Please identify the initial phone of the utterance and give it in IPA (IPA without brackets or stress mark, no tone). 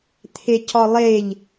t̪ʰ